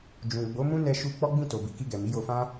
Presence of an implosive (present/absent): absent